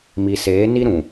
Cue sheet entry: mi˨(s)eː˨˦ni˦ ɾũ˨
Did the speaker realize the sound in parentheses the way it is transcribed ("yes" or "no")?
yes